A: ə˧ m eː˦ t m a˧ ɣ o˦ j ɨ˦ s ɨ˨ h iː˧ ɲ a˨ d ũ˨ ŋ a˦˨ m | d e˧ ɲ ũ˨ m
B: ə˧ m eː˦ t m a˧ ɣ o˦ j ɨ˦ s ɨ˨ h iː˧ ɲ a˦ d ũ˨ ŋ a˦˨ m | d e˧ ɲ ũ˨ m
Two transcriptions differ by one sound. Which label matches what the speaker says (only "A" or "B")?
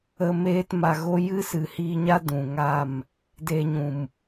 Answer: B